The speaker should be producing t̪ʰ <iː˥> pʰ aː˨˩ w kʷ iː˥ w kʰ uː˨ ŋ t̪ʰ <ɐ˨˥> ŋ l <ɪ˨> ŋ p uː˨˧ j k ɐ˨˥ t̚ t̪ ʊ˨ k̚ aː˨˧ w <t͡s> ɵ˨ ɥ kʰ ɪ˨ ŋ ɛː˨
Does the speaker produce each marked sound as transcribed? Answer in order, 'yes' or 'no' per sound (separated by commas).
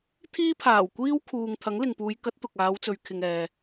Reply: yes, yes, yes, yes